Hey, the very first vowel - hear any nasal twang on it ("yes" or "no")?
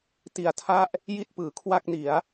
no